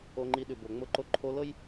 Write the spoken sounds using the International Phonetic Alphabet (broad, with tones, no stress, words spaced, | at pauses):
o˧ŋ͡ǃi˧ɗʉ˩bo˩ ŋ͡mʊ˧ǃo˧ǃʰo˧˥l ɤ˥j